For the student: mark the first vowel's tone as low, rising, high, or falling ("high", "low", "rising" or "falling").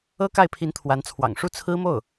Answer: high